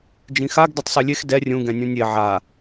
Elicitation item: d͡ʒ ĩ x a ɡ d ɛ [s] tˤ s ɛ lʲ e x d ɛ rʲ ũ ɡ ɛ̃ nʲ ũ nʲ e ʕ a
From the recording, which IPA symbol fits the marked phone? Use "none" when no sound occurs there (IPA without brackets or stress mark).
none